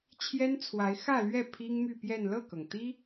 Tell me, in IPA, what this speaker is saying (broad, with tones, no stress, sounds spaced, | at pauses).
t͡ɕʰ j ɛ˥ n t͡sʰ w a˧˥ ɪ̯ x ä˥˧ l ɥ ɛ˥˩ pʰ i˥ ŋ m y˥˧ p j ɛ˥˧ n l ɤ˥˩ k ɤ˩ ŋ t̪ i˥